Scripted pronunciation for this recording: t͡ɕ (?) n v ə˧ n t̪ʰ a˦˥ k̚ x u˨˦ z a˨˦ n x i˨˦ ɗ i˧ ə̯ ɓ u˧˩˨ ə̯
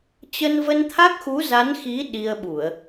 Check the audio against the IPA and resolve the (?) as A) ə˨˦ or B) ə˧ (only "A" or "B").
B